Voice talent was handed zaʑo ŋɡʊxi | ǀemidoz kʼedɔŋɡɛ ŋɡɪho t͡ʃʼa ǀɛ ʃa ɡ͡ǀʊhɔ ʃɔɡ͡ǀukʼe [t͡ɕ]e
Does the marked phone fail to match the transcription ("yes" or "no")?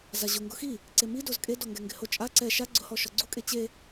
no